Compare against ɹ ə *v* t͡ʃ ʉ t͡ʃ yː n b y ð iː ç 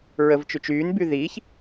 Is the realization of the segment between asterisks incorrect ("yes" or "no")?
no